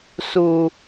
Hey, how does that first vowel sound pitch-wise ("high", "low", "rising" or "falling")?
high